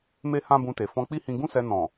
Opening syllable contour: high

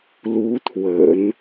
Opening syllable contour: rising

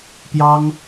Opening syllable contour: high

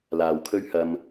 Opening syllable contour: low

